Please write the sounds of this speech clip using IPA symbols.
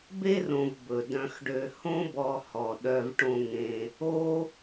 be˥rõ˨v bɵ˩ dœ̃˨xɖø˨ hõ˦bɔ˨ hɔ˩ɗœ˨v ʈõ˨ŋẽ˩ | o˥

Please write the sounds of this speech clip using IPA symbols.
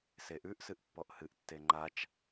seʔʉʔ sɨʔpːɔʔhɨʔ tːeŋ͡ǃat͡ʃ

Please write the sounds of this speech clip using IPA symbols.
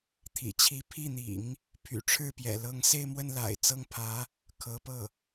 t̪ʰḭ˨˩t͡ɕʰi˧˥ pʰi˥˩n̪ḭ˨˩˦ŋ | pʰy̰˨˩ʈ͡ʂʰɻ̩˥˩pjɛ̰˨˩ lɤ˧˥ŋse˥˧ɪ̯mwə˥˩n la̰˨˩ɪ̯ t͡sɤ˥˩ŋpʰä˧˥ | kʰɤ˧˥pɤ˥˩

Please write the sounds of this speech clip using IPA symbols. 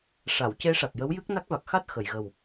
ʂa˨˩˨wce˧˥ʂa˨˩k̚ jə˧˥wjɨ˦˥k̚na˦˥k̚va˨˩k̚ xa˦˥t̚xə˨˩˨jɣə˨˩w

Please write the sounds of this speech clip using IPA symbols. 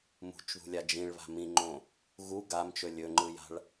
mṳt͡ʃðṳlʲa d͡ʒĩɭβa̤ mĩŋ͡ǃõ | ɣu ɡamt͡ʃɵ lʲɵŋ͡ǃɯja̤ɭ

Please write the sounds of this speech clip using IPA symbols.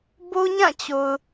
bo˦ɲã˦˨t͡ɕo˨ʊ̯

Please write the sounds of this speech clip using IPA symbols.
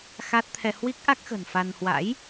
xa˦˥t̚ t̪ʰɛ˧hwi˦˥k̚ ʔa˦˥k̚xə̤˨˩n fa˧n hwa̰˧˥j

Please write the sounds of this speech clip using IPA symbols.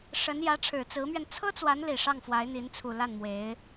ʂə˧˥n jä˧˥ʈ͡ʂʰɻ̩˨˩ t͡sɹ̩˧˥mɥɛ˧n t͡sʰɤ˥t͡swa˧˥nli˨˩ ʂɑ˥˩ŋfwa˧˥ɪ̯n̪i˧˥nt͡sʰu˨˩ la˥˩nmwe˧˥ɪ̯

